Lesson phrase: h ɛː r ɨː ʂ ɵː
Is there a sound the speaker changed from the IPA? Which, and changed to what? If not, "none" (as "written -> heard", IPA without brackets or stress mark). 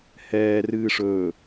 none